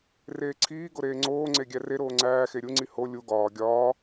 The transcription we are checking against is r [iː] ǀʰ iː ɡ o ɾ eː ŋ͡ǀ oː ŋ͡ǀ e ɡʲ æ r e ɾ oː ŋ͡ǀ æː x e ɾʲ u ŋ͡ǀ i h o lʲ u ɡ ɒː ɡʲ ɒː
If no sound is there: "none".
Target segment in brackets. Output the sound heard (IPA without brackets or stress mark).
eː